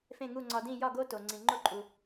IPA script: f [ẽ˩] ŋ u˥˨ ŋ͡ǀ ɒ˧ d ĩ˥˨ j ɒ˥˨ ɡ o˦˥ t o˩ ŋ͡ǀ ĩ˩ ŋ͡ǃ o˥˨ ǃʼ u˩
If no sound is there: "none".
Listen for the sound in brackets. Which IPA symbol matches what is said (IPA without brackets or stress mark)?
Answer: ẽ˥˨